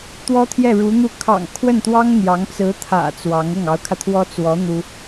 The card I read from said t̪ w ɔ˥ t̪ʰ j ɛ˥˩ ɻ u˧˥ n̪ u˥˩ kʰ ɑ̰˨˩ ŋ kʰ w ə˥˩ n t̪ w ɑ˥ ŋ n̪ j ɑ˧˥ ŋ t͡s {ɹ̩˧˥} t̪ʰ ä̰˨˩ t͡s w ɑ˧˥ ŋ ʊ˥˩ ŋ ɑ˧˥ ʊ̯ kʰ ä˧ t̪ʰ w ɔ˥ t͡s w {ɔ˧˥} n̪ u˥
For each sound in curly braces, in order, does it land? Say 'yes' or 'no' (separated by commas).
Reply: yes, yes